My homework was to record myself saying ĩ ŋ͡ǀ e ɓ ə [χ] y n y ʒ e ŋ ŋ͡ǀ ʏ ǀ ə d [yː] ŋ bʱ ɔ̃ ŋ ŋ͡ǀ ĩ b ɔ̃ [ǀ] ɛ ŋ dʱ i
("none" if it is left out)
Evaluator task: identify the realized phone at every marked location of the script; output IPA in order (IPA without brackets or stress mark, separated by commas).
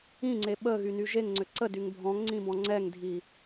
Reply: ɣ, y, ŋ͡ǀ